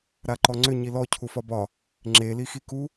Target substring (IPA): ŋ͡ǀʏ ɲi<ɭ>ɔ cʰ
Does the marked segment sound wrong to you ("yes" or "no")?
yes